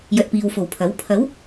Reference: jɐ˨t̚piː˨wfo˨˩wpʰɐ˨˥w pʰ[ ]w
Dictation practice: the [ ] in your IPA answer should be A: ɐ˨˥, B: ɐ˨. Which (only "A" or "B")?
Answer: A